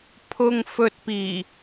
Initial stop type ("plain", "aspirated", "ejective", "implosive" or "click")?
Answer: aspirated